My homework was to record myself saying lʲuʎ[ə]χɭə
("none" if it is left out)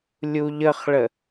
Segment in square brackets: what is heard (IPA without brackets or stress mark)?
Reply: ə